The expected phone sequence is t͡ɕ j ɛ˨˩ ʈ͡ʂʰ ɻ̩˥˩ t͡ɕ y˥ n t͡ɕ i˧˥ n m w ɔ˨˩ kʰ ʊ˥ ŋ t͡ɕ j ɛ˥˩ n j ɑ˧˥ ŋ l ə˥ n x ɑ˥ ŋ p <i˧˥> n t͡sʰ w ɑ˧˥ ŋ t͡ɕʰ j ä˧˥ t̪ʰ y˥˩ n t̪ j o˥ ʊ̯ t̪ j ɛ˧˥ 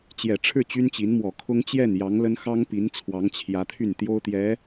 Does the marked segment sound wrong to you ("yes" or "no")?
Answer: no